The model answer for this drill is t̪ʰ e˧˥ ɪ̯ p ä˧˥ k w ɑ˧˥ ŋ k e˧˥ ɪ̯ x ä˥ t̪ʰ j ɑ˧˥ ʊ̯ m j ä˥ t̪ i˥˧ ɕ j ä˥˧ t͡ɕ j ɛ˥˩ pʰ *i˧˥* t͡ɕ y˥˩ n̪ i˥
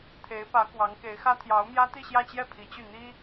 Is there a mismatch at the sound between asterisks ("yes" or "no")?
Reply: no